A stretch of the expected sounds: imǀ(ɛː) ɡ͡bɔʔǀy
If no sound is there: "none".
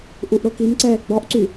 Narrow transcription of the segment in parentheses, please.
ɛː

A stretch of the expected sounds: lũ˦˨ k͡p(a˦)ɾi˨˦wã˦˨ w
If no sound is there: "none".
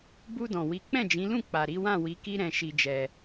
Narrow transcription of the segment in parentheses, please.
a˨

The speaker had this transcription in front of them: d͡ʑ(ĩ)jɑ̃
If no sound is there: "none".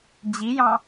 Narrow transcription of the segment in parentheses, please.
i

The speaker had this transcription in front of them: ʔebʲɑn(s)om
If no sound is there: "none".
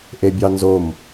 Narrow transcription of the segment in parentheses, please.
z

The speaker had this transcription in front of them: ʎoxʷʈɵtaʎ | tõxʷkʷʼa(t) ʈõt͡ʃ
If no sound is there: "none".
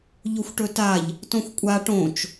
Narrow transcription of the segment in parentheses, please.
none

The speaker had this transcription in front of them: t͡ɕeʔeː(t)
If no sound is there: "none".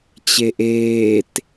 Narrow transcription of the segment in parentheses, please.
t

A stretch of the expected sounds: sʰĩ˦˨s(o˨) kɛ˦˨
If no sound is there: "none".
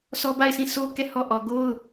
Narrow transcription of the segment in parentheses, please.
o˦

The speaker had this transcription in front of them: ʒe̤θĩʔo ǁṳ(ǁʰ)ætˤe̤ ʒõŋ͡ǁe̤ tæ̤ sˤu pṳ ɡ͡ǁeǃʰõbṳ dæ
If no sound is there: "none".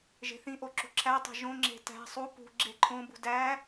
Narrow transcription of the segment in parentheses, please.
ǁʰ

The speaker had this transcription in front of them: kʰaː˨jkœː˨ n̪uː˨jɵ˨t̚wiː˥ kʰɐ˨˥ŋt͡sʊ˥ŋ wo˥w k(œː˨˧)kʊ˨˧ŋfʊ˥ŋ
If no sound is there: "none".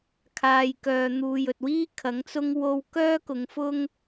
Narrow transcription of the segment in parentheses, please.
œː˥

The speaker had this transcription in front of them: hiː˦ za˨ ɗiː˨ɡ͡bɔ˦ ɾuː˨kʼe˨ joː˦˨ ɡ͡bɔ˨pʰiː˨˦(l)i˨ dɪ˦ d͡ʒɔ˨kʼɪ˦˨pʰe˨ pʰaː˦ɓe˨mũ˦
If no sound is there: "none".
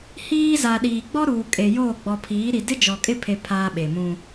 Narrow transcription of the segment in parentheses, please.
ɾ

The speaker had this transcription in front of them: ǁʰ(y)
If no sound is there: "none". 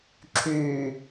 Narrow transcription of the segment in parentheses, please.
y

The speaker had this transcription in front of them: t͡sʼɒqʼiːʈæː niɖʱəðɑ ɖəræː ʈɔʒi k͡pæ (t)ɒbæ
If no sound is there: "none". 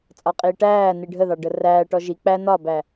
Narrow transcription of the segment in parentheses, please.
n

